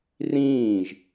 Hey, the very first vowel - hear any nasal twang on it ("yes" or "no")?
yes